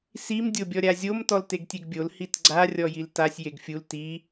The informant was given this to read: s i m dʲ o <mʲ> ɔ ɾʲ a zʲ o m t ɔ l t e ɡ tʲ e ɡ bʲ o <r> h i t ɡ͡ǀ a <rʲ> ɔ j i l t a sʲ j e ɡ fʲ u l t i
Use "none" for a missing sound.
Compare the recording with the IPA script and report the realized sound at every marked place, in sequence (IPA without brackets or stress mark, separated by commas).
bʲ, l, rʲ